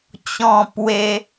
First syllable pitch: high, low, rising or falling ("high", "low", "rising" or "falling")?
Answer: falling